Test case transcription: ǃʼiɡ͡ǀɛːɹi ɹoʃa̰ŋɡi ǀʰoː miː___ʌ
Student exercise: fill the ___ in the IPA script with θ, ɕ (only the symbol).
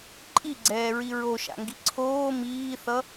θ